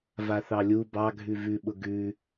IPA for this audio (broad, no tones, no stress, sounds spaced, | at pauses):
v a θ ɑ lʲ u b ɑ ɡʱ ʉ v ʉ ɓ ʊ ɡ ʉ